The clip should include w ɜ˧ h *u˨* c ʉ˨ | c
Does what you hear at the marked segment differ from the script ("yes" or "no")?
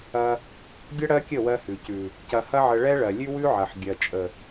yes